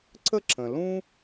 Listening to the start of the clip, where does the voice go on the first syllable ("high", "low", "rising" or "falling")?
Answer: high